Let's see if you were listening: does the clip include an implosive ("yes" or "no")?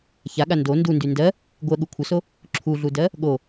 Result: yes